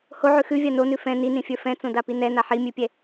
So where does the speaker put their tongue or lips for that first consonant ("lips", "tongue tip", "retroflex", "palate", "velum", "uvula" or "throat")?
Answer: throat